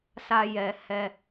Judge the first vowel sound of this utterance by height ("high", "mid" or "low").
low